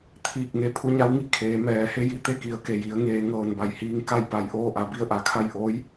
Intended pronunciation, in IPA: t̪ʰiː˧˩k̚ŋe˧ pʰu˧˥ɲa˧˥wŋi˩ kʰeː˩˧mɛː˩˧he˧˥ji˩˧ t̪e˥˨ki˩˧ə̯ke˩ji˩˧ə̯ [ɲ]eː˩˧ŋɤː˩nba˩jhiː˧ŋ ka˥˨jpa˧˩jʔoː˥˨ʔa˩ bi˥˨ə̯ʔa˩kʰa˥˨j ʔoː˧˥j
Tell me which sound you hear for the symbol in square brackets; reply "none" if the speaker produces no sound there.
ŋ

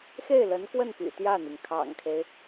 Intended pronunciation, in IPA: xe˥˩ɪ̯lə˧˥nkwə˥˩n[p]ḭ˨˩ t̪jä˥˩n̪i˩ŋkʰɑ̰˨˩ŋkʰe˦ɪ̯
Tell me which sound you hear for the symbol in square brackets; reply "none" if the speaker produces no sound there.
p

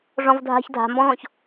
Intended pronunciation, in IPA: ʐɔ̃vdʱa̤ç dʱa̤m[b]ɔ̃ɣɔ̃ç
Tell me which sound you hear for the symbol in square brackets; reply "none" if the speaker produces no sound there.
b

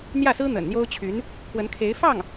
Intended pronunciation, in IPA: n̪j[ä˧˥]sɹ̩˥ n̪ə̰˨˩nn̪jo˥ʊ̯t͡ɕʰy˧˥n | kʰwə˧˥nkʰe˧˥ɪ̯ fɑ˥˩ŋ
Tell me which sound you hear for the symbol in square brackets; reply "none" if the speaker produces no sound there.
ä˥˩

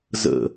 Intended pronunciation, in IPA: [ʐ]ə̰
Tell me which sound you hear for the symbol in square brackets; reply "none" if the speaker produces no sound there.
z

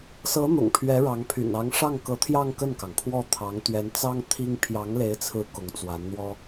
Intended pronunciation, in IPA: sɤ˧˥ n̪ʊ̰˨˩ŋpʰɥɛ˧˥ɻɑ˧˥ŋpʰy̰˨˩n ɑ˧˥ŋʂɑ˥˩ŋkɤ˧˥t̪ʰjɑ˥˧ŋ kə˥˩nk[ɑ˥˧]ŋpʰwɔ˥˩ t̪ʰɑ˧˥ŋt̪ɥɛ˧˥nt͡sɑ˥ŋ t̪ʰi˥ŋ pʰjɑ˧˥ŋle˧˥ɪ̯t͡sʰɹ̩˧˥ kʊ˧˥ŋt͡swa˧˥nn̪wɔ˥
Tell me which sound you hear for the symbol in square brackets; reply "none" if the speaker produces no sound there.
ɑ˩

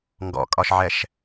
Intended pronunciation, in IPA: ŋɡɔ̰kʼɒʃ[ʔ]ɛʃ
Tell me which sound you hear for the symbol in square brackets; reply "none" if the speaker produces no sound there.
ʕ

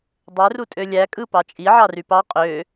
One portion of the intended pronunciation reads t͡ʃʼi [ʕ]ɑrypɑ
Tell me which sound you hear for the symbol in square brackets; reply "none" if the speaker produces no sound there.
ʕ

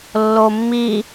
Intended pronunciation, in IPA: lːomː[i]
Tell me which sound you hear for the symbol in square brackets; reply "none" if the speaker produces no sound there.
i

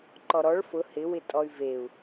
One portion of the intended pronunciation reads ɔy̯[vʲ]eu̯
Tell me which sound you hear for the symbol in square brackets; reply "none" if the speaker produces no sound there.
v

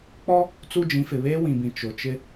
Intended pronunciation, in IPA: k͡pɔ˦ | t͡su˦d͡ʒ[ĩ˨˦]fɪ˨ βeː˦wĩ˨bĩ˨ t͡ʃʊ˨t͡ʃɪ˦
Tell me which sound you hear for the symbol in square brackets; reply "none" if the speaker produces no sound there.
ĩ˨˦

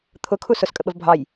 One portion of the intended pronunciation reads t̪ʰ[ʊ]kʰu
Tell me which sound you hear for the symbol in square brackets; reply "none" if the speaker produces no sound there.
ʊ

